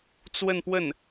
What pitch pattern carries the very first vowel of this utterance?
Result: falling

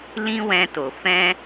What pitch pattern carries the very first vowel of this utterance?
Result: high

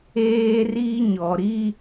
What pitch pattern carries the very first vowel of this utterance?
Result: high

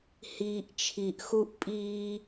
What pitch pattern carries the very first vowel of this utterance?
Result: low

